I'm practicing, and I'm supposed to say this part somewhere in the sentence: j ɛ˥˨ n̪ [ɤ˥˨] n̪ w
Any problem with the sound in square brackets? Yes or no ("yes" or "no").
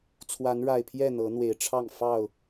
yes